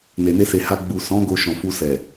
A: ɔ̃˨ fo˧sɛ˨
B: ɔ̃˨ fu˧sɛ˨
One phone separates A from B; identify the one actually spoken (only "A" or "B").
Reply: B